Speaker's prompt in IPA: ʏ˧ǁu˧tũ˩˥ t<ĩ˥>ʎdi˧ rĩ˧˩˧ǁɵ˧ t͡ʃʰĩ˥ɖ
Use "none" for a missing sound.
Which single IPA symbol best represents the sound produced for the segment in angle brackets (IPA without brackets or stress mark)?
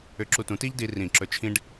i˥